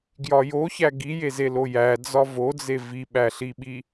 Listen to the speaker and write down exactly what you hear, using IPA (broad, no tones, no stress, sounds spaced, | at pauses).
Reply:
ɡ j ɒ j o ç æ ɡ i j e z e l o j æ d͡z ɒ v o d͡z e v i ɓ æ ɬ i ɓ i